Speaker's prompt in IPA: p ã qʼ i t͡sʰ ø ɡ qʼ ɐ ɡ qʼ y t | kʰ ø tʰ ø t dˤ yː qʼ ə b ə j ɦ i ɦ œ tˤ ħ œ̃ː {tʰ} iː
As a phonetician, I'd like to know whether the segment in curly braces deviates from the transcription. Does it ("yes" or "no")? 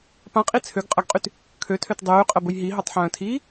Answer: no